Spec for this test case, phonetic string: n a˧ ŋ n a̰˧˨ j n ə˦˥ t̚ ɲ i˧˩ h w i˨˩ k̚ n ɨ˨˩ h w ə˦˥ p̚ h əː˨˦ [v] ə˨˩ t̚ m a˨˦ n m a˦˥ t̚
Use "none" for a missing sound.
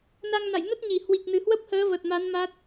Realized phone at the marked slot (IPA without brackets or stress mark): v